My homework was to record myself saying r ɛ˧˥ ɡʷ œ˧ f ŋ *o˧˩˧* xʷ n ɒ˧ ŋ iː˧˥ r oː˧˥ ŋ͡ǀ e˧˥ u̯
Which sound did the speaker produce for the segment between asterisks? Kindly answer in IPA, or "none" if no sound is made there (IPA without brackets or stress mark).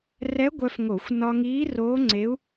o˧˩˧